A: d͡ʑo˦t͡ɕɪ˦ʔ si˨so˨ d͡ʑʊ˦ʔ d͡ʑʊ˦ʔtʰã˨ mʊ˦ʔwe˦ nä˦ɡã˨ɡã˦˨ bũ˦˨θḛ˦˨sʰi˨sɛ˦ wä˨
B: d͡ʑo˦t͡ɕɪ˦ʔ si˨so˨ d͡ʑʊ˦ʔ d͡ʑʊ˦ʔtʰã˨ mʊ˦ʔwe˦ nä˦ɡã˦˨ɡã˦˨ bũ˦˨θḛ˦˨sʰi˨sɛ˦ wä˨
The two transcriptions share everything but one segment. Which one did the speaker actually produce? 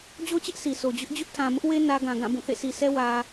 A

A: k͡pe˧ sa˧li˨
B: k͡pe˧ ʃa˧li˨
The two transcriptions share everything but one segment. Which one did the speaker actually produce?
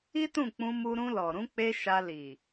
B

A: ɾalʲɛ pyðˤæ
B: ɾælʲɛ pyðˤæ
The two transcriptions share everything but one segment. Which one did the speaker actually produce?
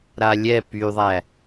A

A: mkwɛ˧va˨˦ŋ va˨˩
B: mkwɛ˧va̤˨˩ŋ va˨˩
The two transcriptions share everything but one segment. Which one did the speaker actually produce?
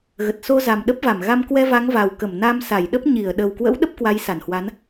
A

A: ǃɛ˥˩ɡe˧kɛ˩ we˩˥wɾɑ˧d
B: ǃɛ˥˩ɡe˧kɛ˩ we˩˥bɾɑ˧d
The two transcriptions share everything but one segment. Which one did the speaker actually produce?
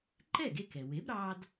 B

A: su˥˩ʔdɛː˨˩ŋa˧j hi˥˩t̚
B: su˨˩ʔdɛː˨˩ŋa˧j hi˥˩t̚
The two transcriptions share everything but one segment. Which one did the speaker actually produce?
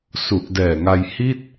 B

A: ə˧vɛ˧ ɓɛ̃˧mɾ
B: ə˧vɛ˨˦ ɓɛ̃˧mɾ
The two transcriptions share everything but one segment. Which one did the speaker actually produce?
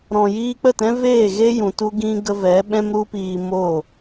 B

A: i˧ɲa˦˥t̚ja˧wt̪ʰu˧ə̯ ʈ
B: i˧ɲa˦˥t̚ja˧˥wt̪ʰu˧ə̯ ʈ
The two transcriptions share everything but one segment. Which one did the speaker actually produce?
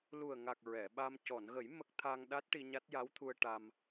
B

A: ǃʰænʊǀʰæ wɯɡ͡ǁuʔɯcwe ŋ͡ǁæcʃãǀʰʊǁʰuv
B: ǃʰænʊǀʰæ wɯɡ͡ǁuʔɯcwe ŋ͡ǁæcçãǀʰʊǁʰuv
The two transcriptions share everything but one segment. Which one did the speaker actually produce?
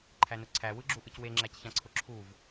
B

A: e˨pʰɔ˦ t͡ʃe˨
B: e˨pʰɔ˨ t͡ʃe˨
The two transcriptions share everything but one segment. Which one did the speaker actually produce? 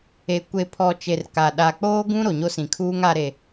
B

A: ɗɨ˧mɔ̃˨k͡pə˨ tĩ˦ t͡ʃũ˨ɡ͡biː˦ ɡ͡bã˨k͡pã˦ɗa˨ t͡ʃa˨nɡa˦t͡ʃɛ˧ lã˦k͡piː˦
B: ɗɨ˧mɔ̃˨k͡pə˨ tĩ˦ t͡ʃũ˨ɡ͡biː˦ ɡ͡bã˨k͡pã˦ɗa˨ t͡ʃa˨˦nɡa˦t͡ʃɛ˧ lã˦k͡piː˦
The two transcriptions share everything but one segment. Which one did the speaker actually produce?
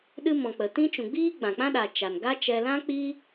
A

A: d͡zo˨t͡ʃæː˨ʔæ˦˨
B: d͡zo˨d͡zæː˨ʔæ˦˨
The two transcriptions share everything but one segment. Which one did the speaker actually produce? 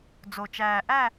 A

